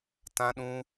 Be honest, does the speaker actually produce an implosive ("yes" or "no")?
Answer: yes